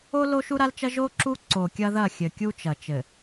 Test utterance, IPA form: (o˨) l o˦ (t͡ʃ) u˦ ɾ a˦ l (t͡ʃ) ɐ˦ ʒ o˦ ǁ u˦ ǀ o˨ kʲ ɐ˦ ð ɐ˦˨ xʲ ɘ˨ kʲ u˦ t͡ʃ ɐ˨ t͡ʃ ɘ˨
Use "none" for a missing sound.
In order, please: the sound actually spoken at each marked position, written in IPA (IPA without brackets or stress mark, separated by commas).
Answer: o˦, ʃ, t͡ʃ